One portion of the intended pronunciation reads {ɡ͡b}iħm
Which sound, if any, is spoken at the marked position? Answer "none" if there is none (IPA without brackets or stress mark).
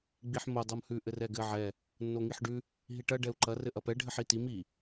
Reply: ɡ͡b